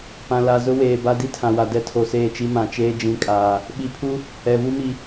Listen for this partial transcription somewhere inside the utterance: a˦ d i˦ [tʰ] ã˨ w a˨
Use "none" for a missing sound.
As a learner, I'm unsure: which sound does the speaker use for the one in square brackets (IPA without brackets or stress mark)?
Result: tʰ